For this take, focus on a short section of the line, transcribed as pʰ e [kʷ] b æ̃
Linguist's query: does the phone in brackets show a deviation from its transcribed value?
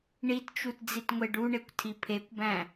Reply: no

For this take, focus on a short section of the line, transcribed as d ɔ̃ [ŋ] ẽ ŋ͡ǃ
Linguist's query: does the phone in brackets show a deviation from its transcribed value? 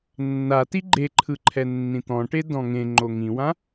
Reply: no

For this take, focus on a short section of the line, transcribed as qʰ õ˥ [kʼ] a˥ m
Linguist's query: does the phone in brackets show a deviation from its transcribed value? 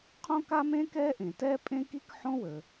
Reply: yes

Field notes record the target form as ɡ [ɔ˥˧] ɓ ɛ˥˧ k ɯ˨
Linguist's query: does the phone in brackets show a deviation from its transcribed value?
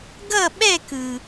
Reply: yes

